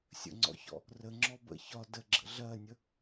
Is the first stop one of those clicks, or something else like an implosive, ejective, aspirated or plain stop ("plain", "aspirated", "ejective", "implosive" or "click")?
click